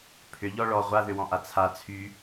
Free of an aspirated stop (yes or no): no